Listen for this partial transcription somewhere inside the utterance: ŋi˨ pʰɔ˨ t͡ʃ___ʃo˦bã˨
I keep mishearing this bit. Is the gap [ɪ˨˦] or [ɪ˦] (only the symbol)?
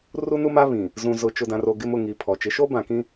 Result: ɪ˨˦